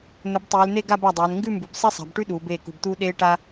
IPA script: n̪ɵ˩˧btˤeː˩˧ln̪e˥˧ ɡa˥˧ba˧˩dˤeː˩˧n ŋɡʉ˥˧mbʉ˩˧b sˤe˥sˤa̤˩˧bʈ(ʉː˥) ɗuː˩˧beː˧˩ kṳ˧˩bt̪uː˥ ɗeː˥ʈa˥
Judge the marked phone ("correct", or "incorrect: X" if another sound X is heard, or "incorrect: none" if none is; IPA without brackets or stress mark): incorrect: ʉ˥